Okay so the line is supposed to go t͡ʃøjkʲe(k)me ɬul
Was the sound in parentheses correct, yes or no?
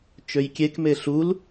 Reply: yes